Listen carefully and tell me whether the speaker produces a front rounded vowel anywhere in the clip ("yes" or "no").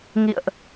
no